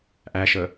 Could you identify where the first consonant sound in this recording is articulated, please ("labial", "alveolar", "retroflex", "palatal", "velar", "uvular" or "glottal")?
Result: glottal